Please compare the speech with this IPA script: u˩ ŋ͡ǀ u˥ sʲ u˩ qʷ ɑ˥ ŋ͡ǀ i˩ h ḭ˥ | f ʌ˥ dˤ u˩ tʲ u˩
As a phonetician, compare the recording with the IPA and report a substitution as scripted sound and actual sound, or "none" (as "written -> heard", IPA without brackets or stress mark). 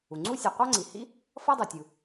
none